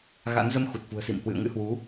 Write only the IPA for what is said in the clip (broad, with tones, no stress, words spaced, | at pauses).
ɣa̰˧˥n zə˧mxu˨˩t̚fṳ˨˩ə̯sḭ˧˨m hwɨ̰˧˨ə̯ŋɨ̰˧˥hwu˨˦